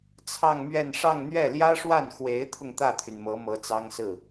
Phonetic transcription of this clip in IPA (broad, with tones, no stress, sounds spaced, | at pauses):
t͡sʰ ɑ˥˧ ŋ m ɥ ɛ˥˧ n ʂ ɑ˥˧ ŋ n̪ ɥ ɛ˥˩ l j ä˥ ʂ w a˥˩ n x w e˧˥ ɪ̯ t̪ʰ ʊ˧ ŋ t̪ ä˥˩ t̪ʰ y˩ n m ɤ˧˥ m ɤ˧˥ t͡s ɑ˥ ŋ s ɹ̩˥˩